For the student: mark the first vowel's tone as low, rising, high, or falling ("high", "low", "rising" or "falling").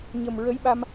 low